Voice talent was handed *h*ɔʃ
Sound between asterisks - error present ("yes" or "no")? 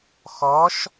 yes